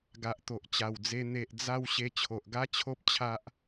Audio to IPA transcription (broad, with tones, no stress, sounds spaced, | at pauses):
ɡ a˨ ʔ t̪ o˨ ʔ t͡ɕ a˨˩ w d͡z e˧ n̪ e˨ ʔ d͡z a˧ w ɕ e˧ t͡ɕʰ o˨ ʔ ɡ a˦ t͡ɕʰ o˦ p̚ t͡ɕʰ a˦ ʔ